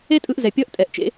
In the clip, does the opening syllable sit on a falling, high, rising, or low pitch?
high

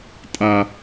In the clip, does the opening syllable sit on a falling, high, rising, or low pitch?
low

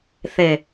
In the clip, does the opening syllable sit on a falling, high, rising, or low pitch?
low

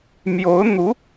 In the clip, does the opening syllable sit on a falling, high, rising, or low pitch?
rising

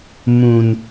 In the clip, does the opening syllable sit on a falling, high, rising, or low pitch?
high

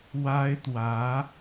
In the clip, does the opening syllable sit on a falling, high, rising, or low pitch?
high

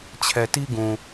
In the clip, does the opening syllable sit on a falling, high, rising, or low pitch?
low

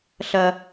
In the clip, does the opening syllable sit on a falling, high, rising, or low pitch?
high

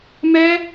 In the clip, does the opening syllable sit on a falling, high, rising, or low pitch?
high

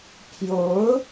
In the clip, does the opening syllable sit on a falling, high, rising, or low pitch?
rising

